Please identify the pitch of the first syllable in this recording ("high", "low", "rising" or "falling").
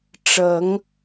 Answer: rising